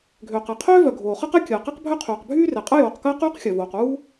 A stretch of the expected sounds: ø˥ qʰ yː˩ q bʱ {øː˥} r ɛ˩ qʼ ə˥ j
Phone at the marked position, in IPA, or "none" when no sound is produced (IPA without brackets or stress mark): yː˥